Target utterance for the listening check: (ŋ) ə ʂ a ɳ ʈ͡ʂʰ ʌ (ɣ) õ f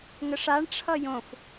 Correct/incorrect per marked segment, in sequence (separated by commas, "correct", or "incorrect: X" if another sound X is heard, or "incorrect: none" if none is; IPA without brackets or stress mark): correct, incorrect: j